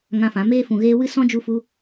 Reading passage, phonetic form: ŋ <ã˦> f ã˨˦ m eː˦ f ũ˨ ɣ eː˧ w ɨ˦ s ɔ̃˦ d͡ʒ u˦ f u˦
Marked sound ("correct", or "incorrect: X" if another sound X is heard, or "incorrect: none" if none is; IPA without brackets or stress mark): incorrect: ã˧